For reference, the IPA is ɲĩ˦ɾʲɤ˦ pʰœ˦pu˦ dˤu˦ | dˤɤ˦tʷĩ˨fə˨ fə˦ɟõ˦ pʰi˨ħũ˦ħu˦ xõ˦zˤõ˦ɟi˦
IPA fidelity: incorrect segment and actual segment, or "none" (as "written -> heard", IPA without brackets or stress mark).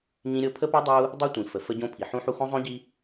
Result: œ˦ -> ə˦